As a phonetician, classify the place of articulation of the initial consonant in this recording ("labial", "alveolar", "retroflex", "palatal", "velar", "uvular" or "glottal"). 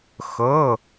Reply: velar